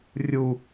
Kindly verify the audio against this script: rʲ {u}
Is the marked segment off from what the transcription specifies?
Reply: no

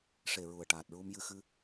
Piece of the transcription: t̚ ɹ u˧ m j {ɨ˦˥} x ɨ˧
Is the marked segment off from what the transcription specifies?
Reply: yes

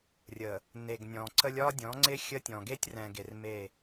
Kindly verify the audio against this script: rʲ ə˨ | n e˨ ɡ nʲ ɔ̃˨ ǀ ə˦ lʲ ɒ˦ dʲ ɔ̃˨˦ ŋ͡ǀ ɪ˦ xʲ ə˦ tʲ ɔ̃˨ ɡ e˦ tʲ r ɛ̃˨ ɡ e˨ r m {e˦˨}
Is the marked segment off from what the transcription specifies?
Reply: no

